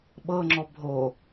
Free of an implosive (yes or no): no